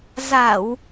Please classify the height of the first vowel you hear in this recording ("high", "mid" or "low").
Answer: low